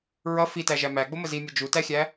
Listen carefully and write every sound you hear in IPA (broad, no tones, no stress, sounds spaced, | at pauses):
ɹ ʌ f i t æ ʒ æ m æ ɡ͡b ʊ m ə z i mʲ ə d͡ʒ u t æ xʲ æ